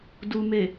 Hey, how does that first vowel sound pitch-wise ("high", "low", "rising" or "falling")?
low